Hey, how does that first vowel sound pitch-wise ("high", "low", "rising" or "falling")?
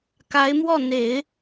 rising